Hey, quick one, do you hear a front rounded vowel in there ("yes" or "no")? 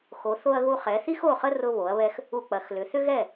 yes